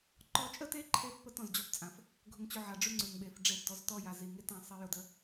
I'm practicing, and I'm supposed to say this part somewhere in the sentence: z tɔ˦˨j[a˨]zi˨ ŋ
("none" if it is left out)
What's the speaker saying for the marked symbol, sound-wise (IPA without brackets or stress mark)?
a˨